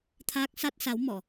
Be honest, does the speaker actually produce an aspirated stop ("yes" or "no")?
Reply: yes